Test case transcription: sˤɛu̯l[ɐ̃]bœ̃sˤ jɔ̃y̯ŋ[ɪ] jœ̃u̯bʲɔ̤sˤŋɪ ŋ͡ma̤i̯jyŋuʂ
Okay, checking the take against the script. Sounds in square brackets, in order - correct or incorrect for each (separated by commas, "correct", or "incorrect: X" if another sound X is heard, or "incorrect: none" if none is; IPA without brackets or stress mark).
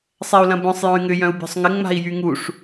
correct, incorrect: ʏ